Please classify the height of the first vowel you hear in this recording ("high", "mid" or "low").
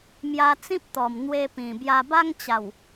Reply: low